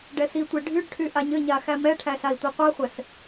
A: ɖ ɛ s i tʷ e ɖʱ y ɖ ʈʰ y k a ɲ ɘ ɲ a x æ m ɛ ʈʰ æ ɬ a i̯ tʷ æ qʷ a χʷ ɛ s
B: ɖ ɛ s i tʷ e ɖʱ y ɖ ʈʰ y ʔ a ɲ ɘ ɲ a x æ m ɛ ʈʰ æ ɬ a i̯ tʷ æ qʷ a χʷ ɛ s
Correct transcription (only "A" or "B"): B